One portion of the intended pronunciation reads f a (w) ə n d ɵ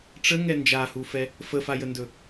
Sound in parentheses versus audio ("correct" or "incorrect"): incorrect